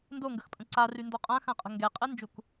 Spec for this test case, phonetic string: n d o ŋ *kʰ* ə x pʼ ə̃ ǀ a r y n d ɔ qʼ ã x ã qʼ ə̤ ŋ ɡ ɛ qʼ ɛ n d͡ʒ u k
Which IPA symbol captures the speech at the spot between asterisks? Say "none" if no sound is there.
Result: ɡ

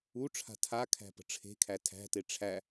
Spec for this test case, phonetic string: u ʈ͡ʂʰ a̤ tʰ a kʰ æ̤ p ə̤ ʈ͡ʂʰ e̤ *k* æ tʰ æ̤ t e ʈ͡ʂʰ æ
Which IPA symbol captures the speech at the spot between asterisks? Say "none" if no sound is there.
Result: kʰ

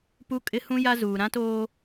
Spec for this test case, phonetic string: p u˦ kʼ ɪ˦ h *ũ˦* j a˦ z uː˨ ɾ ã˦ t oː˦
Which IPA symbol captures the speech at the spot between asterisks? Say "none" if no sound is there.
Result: ũ˦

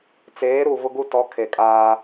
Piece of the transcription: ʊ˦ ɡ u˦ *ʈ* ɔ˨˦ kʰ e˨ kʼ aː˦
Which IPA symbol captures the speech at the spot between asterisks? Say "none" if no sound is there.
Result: t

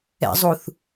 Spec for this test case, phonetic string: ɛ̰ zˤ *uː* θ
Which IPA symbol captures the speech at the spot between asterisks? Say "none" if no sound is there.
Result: u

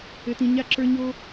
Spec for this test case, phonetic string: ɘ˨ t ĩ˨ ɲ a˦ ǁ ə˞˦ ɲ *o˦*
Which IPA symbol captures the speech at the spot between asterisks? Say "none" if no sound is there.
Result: o˦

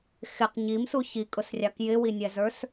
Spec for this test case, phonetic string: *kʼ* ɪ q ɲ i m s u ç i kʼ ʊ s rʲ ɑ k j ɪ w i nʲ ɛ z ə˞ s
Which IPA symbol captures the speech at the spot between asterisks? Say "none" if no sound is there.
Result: x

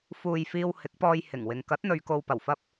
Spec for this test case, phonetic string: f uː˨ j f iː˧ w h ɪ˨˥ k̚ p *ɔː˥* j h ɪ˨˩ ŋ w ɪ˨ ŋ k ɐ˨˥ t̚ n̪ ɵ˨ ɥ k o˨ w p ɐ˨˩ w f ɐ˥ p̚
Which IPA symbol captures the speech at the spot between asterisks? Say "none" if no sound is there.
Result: ɔː˧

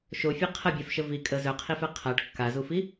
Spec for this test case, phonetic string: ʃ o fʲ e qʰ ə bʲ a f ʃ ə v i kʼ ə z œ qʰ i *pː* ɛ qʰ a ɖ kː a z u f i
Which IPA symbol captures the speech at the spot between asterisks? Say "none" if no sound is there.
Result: f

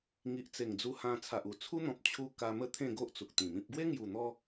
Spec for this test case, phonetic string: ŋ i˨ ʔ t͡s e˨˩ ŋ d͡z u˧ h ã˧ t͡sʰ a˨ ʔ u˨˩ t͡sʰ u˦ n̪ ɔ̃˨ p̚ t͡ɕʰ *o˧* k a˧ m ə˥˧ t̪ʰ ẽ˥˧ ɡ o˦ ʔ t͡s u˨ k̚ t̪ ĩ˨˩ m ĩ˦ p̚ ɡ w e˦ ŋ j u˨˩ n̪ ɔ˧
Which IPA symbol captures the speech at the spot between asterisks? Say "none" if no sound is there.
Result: u˧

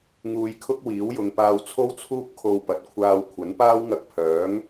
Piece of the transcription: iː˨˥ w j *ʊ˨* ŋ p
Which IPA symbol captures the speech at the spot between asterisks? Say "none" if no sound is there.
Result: ʊ˨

